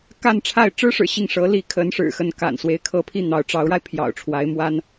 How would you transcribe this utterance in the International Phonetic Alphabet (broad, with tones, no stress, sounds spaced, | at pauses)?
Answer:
k a˥˧ n ʈ͡ʂʰ a˥˩ ɪ̯ ʈ͡ʂ ɻ̩˥ ʂ ɻ̩˨˩ ɕ i˥˩ ŋ ʂ ɤ˧˥ l i˧˥ kʰ ə˧˥ n ʂ ɻ̩˨˩ x ə˥˩ n k a̰˨˩ n s w e˧˥ ɪ̯ kʰ ɤ˧˥ pʰ i˥˩ n̪ ɑ˧˥ ʊ̯ ʈ͡ʂ ɑ˧˥ ʊ̯ ɻ a˧ ɪ̯ pʰ j ɑ̰˨˩ ʊ̯ ʈ͡ʂʰ w a˧˥ ɪ̯ m w a˥ n